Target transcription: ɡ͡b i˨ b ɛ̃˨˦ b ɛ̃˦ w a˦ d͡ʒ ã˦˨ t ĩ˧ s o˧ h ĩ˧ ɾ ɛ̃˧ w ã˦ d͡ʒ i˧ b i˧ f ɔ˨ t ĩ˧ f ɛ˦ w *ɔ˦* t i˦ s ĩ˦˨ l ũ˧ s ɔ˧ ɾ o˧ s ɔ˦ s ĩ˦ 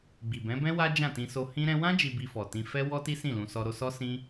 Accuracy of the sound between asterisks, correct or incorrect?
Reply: correct